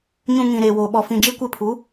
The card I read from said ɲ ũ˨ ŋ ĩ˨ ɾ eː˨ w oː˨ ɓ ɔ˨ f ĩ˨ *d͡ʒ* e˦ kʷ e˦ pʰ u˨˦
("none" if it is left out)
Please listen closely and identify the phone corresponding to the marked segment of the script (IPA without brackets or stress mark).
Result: d͡ʒ